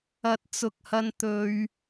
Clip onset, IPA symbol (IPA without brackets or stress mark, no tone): ɐ